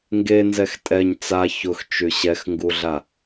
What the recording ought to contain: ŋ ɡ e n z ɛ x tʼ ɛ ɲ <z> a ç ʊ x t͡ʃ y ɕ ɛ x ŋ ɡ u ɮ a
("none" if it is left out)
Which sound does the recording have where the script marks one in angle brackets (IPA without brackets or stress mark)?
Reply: t͡s